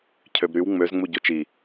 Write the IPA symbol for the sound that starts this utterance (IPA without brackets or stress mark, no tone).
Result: cʰ